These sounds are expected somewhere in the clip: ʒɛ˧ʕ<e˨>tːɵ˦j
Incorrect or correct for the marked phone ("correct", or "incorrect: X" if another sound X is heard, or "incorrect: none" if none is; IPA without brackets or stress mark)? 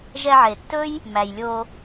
correct